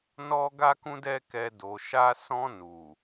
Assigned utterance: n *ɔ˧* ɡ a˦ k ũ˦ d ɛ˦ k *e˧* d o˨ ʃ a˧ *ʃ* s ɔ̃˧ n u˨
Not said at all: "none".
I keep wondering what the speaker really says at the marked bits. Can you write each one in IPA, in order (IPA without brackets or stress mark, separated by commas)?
ɔ˧, ɛ˧, none